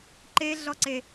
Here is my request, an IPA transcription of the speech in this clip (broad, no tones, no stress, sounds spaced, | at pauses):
ǃ e ɮ ɔ ǀ e